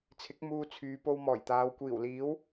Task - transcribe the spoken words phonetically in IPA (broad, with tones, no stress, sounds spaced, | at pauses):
t͡sʰ ɪ˨˥ k̚ m uː˧ t͡sʰ yː˨˧ p o˧ w m ɔː˨˩ j t̪ aː˨˧ w kʷ iː˨˩ w l iː˨˥ w